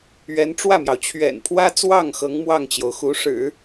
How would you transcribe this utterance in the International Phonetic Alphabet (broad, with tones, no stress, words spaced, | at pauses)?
ɥɛ˧˥nʈ͡ʂwä˥˩mjɑ˩ʊ̯ t͡ɕʰɥɛ̰˨˩npʰwä˥t͡swɑ˥˩ŋ xɤ˧˥ŋ mwɑ˥˩ŋt͡ɕjo˩ʊ̯xu˧˥ʂɻ̩˨˩˦